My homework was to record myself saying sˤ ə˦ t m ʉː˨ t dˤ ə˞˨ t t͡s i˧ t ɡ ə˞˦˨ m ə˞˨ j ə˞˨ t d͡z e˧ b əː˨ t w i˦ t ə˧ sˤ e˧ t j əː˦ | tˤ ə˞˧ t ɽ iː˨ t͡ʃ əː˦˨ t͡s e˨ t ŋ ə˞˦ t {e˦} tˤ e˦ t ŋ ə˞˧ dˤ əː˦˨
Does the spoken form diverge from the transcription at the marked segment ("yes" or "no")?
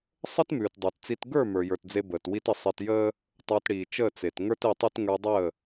yes